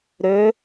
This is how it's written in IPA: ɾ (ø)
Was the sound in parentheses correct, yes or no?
yes